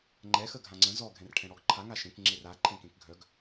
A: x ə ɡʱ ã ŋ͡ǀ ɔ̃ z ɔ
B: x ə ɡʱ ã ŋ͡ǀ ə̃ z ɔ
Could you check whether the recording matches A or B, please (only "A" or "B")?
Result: B